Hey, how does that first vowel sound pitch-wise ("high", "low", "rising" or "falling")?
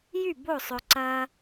falling